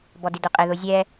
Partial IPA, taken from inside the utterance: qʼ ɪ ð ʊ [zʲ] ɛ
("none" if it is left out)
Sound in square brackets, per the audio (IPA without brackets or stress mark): zʲ